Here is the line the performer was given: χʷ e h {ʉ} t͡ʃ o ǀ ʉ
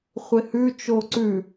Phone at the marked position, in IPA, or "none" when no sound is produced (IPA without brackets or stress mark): ʉ